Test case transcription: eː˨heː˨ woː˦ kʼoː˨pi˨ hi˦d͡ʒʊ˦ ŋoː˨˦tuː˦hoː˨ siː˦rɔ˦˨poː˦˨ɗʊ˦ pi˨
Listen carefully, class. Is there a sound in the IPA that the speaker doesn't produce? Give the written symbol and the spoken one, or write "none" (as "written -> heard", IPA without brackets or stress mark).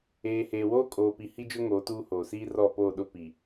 none